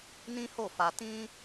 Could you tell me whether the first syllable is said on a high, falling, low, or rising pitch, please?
high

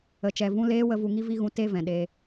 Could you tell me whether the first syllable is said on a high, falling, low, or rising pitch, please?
low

